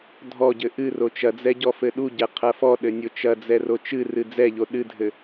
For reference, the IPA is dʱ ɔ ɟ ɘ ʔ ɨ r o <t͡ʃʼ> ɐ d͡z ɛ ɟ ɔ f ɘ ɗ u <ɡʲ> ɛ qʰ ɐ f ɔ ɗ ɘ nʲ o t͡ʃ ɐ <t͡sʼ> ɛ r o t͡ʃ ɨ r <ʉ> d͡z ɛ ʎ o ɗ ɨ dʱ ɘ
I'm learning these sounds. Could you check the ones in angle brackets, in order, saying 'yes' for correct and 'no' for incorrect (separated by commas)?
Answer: no, no, no, no